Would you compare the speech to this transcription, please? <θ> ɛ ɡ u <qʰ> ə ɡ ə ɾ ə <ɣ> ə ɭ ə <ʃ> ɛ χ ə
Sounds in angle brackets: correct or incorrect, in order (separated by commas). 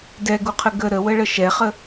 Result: incorrect, correct, incorrect, correct